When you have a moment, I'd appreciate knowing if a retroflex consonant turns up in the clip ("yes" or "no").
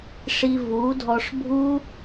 yes